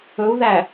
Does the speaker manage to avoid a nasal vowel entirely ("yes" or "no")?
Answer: yes